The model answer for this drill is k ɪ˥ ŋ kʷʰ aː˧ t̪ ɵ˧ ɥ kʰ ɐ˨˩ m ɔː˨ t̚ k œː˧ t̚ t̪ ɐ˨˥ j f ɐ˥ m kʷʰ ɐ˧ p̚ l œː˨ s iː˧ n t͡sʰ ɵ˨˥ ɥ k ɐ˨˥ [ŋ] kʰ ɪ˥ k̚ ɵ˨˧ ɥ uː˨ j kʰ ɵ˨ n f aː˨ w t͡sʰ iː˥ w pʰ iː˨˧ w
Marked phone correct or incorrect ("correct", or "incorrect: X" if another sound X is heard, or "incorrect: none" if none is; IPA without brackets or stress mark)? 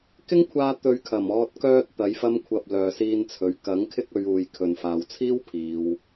correct